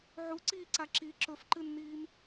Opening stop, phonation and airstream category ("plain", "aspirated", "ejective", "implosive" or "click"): click